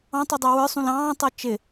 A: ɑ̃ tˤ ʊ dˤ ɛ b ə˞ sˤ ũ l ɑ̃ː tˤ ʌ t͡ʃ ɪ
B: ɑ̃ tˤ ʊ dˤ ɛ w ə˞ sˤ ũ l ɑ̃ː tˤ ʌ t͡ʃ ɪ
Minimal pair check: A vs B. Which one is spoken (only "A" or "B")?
B